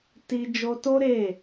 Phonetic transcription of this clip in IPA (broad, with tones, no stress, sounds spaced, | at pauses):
t i˧ d͡ʒ o˧ t o˦ ɾ e˦˨